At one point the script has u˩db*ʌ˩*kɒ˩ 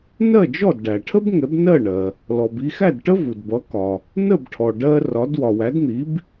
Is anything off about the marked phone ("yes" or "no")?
yes